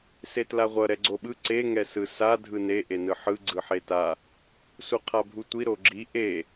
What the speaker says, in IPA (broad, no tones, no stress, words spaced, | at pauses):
setlaʁʷʌ ɾɛɡ͡ǀoɓɯ ǀe ŋɛsɯ sa dʱɯne ʔenɯħɯ ɡ͡ǀɯħeta | suqʰabʱutʷi ɾoɡ͡ǁi ʔe